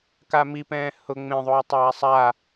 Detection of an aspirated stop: absent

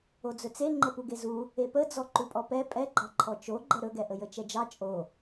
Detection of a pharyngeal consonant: absent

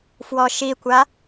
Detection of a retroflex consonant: absent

